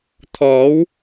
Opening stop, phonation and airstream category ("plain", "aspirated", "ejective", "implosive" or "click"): aspirated